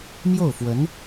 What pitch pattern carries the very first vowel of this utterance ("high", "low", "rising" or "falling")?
falling